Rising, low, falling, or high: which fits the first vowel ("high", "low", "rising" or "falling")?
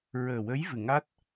low